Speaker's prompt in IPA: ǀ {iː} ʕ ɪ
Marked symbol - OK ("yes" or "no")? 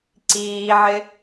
yes